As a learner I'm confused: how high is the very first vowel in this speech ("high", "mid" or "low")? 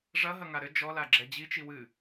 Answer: low